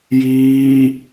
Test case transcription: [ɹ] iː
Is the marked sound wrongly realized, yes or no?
yes